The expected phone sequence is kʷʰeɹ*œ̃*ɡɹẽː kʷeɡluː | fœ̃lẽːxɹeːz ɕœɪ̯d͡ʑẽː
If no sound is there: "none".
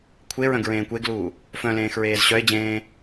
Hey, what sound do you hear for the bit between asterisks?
œ̃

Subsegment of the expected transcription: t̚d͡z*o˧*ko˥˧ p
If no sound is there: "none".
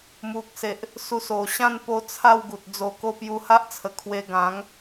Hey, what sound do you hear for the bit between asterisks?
o˧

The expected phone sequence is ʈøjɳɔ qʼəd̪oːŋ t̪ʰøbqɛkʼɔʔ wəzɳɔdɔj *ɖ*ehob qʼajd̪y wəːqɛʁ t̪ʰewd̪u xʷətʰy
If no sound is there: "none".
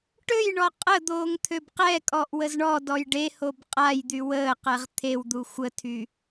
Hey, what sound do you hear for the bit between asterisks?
ɖ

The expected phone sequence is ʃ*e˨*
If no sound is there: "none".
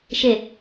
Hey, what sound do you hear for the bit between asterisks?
e˨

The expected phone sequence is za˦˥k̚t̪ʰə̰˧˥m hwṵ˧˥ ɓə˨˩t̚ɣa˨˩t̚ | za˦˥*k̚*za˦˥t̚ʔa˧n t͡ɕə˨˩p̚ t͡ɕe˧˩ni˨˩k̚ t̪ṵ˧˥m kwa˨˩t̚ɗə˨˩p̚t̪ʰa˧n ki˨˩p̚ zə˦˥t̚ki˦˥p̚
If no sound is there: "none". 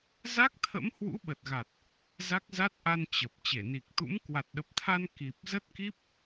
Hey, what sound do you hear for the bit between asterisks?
k̚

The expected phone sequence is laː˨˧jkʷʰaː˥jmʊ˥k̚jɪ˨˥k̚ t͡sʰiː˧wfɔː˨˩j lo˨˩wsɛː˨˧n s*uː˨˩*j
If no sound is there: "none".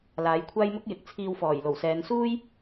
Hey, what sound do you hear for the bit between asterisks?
uː˥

